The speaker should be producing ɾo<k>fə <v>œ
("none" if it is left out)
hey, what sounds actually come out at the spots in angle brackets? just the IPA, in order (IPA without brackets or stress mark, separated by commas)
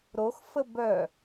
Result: x, b